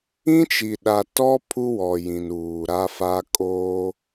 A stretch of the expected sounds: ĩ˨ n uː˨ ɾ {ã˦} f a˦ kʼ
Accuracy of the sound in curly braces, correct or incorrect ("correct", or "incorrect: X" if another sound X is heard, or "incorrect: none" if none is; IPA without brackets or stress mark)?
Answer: incorrect: a˦